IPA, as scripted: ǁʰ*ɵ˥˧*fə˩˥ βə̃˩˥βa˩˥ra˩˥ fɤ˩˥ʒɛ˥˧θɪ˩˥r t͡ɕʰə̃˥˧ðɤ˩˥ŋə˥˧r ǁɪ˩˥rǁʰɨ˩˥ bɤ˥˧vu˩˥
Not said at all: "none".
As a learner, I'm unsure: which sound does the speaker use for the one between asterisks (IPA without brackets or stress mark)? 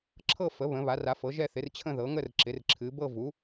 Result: ɤ˥˧